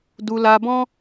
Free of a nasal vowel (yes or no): no